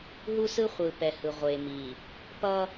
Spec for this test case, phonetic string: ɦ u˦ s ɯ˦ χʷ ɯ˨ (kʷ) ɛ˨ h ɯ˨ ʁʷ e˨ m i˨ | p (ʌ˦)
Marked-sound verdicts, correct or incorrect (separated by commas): incorrect, correct